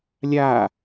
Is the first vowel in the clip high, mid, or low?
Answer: low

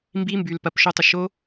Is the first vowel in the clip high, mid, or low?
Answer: high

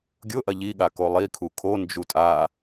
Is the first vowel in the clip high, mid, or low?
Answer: high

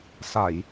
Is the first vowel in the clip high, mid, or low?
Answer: low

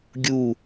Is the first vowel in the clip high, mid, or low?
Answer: high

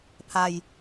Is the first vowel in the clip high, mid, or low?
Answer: low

